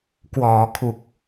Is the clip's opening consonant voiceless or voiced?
voiceless